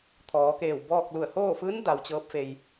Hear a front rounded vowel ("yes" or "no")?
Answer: no